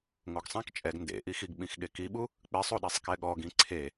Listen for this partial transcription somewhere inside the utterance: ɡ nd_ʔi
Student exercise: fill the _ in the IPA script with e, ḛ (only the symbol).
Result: ḛ